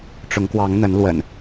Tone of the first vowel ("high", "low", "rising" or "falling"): rising